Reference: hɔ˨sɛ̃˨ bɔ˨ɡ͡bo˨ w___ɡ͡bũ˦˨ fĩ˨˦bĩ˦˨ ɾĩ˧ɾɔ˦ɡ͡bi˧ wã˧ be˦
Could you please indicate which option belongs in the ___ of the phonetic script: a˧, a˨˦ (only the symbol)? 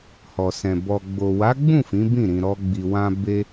a˨˦